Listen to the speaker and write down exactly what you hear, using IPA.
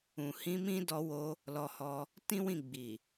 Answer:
ũ˨ h ĩ˧ m ĩ˦ d ɔ˧ w o˧ | l ɔ˧ h ɔ˧ | t ĩ˦ w ĩ˦˨ ɡ͡b i˨

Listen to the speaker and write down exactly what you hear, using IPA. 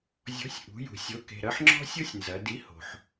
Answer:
zʲ ɔ̤˨˥ sʲ ʔ ṳ˩˧ j ṳ˩ sʲ o˨˥ k e̤˩˧˩ ɾ ɐ˦ ħ ŋ͡ǁ ɔ̤˦ sʲ o˦ sʲ n z ɐ˩˧ d i˨˥ h o̤˩ ħ

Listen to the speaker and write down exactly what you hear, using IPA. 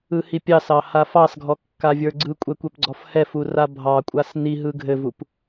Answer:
ɯ h i pʲ ɑ s ɑ h a f ɑ s ɡʱ ɔ kː a vʲ ə˞ ɡ͡ǀ ɯ kʷʼ ɛ kʷ ɛ p ɡ͡ǀ ɔ f h ɛ f u r a bʱ ɑ kʷʼ a s n i ɦ ɯ ɡʱ ɘ v u p

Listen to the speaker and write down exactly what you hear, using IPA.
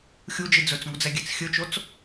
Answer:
xʲ u d͡ʒ i d͡z ɵ t͡s ŋ u d͡z ɛ ɡʲ ɛ t͡s xʲ ɵ t͡ʃ o t͡s

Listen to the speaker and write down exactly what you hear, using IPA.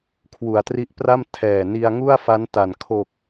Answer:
kʰ w u˨˩ a̯ t r i˦˥ ʔ p r a˥˩ m tʰ ɛː˨˩ n i˧ a̯ ŋ u˥˩ a̯ f a˦˥ n t a˨˩ n kʰ o˨˩ k̚

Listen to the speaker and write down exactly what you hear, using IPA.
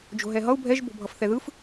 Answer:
d͡ʒ o̤ ɦ ɛ ɦ ʌ u̯ bʱ ɛ ʒ b o̤ bʱ ʌ f θ ɛ ð ɯ f

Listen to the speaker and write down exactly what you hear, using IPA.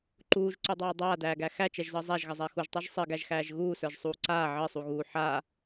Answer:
ǃ uː ʒ ǀ u dˤ aː dˤ aː d æː ɡ æ x æ t͡ʃ ɛ ʒ z əː zˤ æ ʒ ɣ ə zˤ æ x u ʒ tˤ a ʒ sˤ ɘ ɡ æ ʒ x æː ʒ ɣ uː s ə˞ ʒ sˤ uː ǀ aː ʕ ɘ sˤ u ɣ uː ħ a

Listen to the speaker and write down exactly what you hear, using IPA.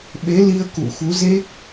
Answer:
ɓ e˨˦ l i˧ ə̯ k ṵ˧˨ x u˨˦ z e˦˥ k̚

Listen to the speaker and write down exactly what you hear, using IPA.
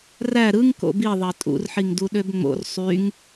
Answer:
r æ ɾ ɯ ŋ k o̰ b i ðˤ ɑ tʼ ṵ r ħ i ŋ d u ɗ ø b ŋ͡m o̰ r sˤ y ŋ

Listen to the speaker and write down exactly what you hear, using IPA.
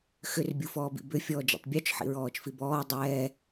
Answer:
x ʏ r bʲ u f ɔː b ḭ b ʏ fʲ ɔː d͡ʒ ḭ tˤ bʲ ɔ t͡ʃ ħ ḭ ɹ ɔː t͡ʃ f i b ɔː dˤ ɛː

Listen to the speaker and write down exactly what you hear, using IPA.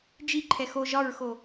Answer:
d͡ʒ i ǃʰ ɛ x o ʒ ɒ ɹ x o

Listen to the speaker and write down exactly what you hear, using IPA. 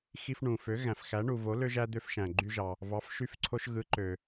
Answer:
x i˧ f ɳ ũ˩ f ø˩˥ ɣ æ̃˩ f x æ˩˥ ɳ u˩ v o˩˥ l ø˧ ʒ æ˧ d̪ ø˧ f ʃ æ̃˩ ɡ͡ǃ y˧ ʒ ɑ˩ | v ɑ˩˥ f ʃ y˧ f ǀʰ o˧ ʃ ɣ ɯ˩˥ ǃ ø˩

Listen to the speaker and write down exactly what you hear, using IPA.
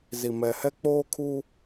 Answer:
z i˨ m ɛ˨ h ɛ˦ k͡p oː˦ kʰ uː˦

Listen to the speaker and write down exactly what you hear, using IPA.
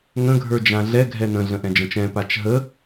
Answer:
ŋ ə̃ ɡʱ ə˞ d͡ʒ ã ɮ ɛ ɡʱ ɛ n ə̃ ɮ ə̃ ʔ ɛ̃ d͡ʒ ə̃ t͡ʃ ɛ̃ p a t͡ʃ ɦ ə

